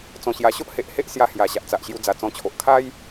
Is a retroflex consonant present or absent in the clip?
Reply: absent